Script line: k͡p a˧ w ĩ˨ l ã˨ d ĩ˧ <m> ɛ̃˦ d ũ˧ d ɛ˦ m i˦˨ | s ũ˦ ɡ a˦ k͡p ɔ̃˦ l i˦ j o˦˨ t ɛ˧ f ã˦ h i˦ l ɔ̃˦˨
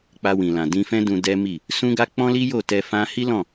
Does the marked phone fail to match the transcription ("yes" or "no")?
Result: yes